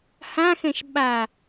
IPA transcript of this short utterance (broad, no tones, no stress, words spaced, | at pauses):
hãxɛ̃ʃ ɓa